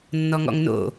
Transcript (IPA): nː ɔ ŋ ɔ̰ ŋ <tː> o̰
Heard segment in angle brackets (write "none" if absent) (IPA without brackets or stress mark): n